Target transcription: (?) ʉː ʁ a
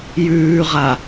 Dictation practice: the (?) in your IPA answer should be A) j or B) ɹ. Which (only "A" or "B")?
A